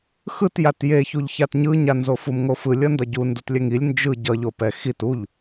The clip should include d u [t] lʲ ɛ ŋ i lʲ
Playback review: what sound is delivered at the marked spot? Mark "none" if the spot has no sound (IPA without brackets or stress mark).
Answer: t